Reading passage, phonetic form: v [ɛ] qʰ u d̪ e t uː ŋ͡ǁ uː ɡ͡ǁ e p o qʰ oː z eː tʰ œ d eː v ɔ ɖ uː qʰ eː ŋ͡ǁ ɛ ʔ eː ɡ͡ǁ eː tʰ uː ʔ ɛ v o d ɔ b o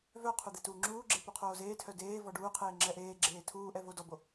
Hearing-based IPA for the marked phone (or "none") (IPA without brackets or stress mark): œ